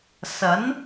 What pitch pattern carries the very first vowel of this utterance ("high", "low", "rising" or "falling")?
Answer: rising